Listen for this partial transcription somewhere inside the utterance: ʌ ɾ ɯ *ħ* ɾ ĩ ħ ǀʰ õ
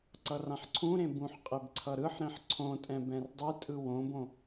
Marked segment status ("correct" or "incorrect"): correct